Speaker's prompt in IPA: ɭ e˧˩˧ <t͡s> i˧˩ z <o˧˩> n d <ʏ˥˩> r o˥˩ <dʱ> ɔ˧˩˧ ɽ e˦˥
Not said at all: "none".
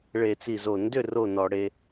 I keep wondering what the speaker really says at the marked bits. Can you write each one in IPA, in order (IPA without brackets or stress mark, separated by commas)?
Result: t͡s, o˧˩, ʏ˥˩, n